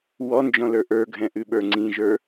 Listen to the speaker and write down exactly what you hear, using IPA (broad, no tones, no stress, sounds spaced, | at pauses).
w ɔ n d͡ʒ ɔ̃ l ə˞ ʔ ə˞ ɡʱ ɛ̃ ʔ ʉ ɓ ə˞ ŋ͡ǀ ĩ ʒ ə˞